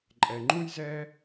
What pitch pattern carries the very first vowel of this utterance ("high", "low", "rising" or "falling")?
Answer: low